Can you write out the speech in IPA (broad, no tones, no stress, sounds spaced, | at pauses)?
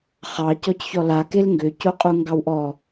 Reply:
χ ɑ c ɔ c ç ɔ l a k e l ŋ ɡ ʏ c o qʼ u ŋ ɡ ɑ w ʔ ɔ